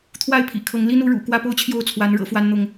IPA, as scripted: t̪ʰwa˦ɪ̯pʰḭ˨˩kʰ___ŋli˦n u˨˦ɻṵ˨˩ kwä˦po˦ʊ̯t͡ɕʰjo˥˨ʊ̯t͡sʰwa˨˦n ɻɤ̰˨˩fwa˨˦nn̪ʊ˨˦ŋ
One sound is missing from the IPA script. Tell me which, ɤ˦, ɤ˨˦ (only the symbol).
ɤ˨˦